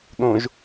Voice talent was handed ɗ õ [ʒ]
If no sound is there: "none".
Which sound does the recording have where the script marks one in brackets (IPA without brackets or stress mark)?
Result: ʒ